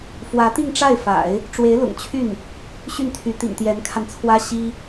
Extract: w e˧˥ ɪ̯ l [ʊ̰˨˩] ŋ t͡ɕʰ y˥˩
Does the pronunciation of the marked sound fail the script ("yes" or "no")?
no